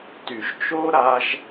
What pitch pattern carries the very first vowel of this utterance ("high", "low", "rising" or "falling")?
low